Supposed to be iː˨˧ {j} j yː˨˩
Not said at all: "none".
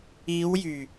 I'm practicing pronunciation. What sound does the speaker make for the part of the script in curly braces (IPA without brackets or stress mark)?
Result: w